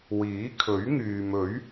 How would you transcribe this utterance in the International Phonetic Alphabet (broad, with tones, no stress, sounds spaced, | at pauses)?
w iː˨˥ kʰ ɵ˨˥ ɥ ŋ yː˨ m ɵ˨˥ ɥ